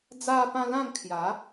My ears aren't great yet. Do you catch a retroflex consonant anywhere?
no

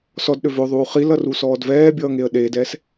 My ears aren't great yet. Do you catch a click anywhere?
no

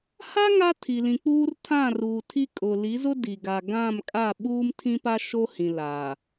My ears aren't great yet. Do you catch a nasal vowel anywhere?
yes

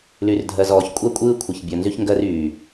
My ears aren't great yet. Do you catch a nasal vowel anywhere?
no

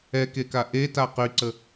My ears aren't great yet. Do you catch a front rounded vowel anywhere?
yes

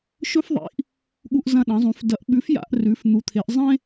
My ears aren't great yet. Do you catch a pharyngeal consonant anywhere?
no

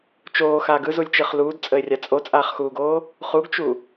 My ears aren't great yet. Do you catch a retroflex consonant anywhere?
no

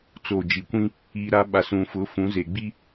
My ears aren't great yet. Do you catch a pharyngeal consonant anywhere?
no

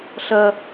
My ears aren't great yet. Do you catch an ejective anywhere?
no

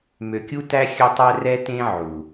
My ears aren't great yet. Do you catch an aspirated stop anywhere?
no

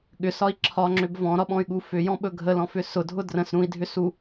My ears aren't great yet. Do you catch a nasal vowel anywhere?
yes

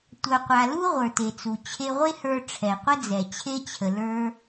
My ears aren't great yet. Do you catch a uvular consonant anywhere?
yes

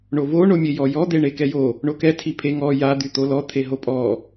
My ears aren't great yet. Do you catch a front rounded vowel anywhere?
yes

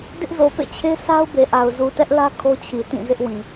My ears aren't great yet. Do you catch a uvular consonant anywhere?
no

